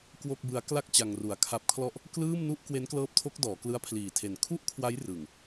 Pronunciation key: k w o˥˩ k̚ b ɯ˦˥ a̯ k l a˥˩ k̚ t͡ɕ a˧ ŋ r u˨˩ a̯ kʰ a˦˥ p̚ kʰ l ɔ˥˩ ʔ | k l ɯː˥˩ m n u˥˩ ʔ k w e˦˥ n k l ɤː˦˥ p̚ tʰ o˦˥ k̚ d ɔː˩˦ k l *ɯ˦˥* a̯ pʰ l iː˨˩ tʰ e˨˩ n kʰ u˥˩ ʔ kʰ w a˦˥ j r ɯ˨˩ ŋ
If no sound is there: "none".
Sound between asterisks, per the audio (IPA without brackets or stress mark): ɯ˦˥